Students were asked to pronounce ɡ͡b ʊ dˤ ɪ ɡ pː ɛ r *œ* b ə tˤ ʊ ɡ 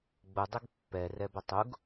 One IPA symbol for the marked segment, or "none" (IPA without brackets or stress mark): ɛ